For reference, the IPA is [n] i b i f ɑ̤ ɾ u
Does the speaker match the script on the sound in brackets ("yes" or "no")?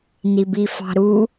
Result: yes